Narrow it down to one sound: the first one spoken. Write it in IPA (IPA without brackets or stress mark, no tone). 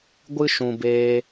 ɡʷ